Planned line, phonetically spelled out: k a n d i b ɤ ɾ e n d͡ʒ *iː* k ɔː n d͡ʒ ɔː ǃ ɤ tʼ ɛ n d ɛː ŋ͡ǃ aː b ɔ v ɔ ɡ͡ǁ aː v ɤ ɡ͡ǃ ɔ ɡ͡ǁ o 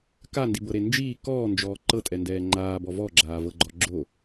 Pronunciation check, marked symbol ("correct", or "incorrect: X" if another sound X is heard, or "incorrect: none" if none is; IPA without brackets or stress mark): correct